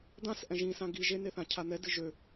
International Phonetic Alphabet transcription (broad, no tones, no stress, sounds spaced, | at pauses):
d̪ ã s ʔ ɛ̃ ʒ ĩ s ã ɡ i ʒ e n e θ ã cʰ a n̪ ɛ d ɨ ʒ ø